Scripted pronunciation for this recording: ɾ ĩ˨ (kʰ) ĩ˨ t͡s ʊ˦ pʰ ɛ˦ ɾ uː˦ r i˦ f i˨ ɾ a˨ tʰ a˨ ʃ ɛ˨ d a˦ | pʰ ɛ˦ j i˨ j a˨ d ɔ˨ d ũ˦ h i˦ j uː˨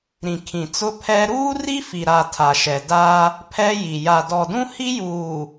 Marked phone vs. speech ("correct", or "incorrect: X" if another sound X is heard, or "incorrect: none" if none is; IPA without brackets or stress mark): correct